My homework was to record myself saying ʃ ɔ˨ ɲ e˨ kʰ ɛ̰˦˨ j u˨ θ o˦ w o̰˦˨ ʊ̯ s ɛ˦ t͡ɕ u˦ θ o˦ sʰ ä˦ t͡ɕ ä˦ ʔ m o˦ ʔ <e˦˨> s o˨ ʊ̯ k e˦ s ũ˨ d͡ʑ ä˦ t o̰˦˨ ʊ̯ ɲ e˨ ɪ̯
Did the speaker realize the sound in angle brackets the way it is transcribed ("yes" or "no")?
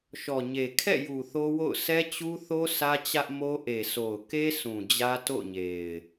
no